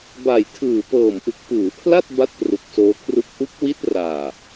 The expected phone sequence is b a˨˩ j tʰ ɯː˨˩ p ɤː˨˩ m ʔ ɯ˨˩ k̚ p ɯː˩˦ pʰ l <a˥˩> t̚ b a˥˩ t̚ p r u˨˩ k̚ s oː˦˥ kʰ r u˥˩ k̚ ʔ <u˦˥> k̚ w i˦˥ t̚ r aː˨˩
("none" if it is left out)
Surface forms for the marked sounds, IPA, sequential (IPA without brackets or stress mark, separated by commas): a˥˩, u˦˥